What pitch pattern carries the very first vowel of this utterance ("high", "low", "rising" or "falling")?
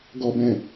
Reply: low